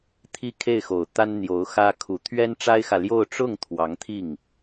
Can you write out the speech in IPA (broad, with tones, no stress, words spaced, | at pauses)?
t̪ʰi˥kʰe˥˩ɪ̯xo˨˩ʊ̯t̪a˥n n̪jo˧˥ʊ̯xä˥ kʰu˨˩ t̪ʰɥɛ˥nʈ͡ʂa˥ɪ̯xä˨ljo˥˧ʊ̯ ʈ͡ʂʊ˥˩ŋ t̪ʰwɑ˧˥ŋt̪ʰi˥˩ŋ